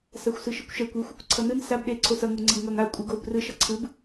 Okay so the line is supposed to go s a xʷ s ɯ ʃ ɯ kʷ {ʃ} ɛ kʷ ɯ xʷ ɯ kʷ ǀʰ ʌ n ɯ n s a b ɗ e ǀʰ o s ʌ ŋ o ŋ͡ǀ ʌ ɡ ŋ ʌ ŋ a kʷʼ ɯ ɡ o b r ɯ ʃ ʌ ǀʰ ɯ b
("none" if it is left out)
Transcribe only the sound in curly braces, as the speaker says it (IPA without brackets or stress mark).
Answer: ʃ